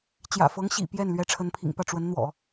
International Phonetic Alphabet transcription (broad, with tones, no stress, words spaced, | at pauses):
t͡ɕjä̰˨˩fɤ˧˥ŋɕḭ˨˩ pjɛ˥˩n lɥɛ˧˥ʈ͡ʂʰə˧˥npʰḭ˨˩ŋpä˥˩ ʈ͡ʂwə˧˥nn̪wɔ̰˨˩˦